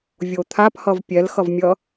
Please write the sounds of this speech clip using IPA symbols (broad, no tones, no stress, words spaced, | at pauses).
vʲot̪ʰaphʌv pʲɛlxʌvmʲʌ